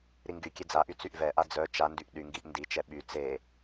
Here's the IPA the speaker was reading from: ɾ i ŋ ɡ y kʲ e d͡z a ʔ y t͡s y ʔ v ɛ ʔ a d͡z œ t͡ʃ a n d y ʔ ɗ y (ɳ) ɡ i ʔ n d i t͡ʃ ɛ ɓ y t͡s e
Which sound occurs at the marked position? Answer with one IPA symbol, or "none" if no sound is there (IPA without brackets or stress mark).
ŋ